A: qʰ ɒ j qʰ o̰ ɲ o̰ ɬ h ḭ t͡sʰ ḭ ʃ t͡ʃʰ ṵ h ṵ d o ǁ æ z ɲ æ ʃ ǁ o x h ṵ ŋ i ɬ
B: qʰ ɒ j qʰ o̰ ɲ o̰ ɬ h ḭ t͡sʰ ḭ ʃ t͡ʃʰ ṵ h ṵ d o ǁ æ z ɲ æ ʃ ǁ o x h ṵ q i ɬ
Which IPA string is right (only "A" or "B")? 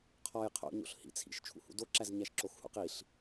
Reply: B